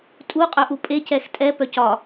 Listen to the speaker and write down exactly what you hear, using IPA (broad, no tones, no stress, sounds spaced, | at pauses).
tʼ u qʼ œ ʔ u pʼ e c ɛ x tʼ ɛ p œ c ɒ